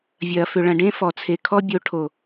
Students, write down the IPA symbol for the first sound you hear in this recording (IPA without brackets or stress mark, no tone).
vʲ